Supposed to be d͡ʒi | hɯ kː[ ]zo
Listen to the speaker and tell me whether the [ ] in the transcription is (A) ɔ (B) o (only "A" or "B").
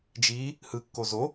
B